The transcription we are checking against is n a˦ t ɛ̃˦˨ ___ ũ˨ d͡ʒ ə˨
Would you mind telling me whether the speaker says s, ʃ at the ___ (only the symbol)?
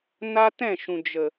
ʃ